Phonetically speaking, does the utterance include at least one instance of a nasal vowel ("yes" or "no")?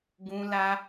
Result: yes